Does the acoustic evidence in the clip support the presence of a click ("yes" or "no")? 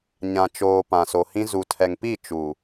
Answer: no